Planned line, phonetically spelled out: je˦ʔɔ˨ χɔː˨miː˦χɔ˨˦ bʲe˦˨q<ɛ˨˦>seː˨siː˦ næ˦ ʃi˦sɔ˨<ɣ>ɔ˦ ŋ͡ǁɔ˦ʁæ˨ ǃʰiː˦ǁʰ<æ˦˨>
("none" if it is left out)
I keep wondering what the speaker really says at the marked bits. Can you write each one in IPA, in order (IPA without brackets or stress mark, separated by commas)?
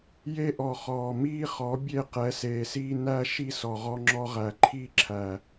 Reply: ɛ˨˦, ʁ, æ˨